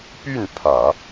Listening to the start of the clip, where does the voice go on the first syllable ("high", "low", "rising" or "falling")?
falling